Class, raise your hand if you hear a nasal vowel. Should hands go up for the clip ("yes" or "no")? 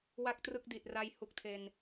no